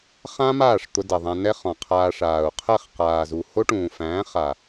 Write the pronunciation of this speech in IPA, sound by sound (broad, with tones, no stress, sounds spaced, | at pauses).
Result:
χ ã˦ m aː˦˨ ʂ t̪ ʊ˧ d ɛ˨ ðˤ æ̃˧ n ɛ˦ χ ɔ̃˨ qʰ aː˧ ʂ aː˨ u̯ qʰ ɛ˦˨ χ q aː˨ z u˨ h o˦ ʈ ũː˨ f æ̃ː˨˦ χ a˨